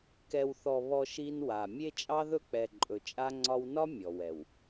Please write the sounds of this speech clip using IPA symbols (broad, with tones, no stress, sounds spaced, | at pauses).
k ɛ˨ w θ ɔ˨ β ɔ˦ ʃ i˦ n w a˨ mʲ e˦ t͡ʃʼ ɑ˦ ð ɵ˦ k͡p ɛ˨ ǃʼ ɵ˨ t͡ʃʼ a˦ ŋ͡ǀ ɒ˦ w n ɒ˦ mʲ ɔ˨ w ɛ˨ w